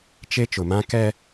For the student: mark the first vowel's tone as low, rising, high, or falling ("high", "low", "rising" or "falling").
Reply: high